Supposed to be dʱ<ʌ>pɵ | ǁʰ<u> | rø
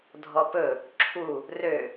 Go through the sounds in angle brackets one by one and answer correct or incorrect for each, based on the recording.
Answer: incorrect: ɔ, correct

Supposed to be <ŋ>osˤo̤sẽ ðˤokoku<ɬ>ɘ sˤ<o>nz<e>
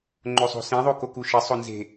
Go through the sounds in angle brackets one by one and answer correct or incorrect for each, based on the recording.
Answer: incorrect: ŋ͡ǃ, incorrect: ʃ, correct, incorrect: e̤

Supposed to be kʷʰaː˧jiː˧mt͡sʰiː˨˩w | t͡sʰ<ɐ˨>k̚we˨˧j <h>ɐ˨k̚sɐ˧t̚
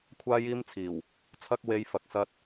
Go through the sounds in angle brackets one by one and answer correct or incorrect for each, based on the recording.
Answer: incorrect: ɐ˧, incorrect: f

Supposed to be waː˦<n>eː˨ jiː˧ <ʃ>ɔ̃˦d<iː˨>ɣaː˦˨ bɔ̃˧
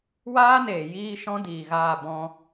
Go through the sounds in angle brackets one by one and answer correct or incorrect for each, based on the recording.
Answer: correct, correct, correct

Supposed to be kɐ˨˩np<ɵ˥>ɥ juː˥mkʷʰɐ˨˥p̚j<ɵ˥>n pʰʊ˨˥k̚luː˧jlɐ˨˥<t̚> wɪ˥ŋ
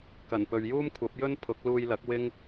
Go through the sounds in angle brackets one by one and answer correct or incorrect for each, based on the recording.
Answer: incorrect: ɵ˨, correct, incorrect: k̚

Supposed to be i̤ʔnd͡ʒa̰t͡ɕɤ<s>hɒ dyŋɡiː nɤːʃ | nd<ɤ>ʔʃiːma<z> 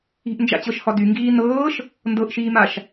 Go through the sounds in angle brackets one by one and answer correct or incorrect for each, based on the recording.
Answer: incorrect: ʃ, correct, incorrect: ʃ

